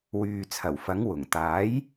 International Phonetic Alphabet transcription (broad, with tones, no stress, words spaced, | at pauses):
wyː˨ t͡sʰɐ˨˩wfɐ˨˥ŋ wʊ˨˩ŋ t̪aː˨˥j